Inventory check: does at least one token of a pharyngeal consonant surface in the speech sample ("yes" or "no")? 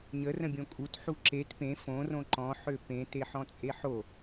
yes